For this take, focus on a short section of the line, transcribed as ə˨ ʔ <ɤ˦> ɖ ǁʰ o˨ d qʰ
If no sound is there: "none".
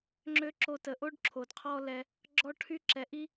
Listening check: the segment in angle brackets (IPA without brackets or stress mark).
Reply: o˦